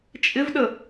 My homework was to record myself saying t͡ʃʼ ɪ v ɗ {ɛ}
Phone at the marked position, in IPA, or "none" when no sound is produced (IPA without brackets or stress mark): ə